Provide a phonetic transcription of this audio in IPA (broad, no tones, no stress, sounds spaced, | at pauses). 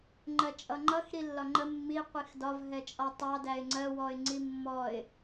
ŋ͡ǃ ɜ t͡ʃʼ ʌ ŋ͡ǃ ʌ x ɾ i lː ɒ ŋ͡ǃ ə mː i qʷ i x d ɒ v ɦ ɛ t͡ʃʼ ɒ tˤ ɑ d æ ɪ̯ ŋ͡ǀ ɜ w ɔ ɪ̯ ŋ͡ǀ i mː ɔ ɪ̯